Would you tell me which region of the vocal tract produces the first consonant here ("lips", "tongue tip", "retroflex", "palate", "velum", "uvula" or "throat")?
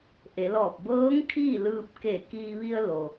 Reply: throat